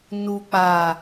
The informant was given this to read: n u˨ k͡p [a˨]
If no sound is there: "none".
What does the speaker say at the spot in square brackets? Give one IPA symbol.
a˨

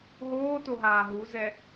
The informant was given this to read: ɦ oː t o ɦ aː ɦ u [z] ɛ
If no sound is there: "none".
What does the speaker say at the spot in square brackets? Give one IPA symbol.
z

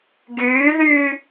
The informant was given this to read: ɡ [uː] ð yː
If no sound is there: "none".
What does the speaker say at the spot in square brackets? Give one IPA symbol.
yː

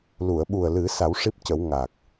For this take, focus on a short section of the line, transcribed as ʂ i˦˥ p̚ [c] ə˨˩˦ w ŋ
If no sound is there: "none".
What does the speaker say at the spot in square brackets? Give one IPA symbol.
c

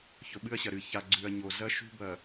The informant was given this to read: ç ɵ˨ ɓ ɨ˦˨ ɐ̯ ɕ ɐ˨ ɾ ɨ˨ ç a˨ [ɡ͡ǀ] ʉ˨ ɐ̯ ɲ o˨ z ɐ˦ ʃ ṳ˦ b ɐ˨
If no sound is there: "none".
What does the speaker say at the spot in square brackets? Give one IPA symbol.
ɡ͡ǀ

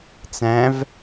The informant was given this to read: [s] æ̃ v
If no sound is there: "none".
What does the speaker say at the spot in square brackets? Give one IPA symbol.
t͡s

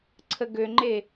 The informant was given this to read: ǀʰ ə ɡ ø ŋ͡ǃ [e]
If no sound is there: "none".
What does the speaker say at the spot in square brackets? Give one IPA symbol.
e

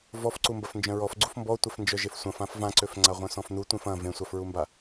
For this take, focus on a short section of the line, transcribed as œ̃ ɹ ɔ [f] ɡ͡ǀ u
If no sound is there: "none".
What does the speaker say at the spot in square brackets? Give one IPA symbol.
f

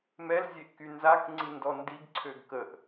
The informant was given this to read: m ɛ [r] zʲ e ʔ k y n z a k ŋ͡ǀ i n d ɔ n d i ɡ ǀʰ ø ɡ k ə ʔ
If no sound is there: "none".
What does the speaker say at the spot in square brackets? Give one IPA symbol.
l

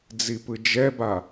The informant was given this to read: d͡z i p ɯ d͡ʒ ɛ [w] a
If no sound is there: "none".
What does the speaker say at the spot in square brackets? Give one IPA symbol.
b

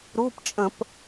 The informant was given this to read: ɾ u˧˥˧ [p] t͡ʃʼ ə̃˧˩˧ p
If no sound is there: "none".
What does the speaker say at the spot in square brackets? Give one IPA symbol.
p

